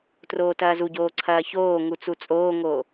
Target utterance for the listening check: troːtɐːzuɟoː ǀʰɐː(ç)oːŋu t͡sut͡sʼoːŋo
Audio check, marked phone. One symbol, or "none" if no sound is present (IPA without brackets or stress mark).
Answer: ç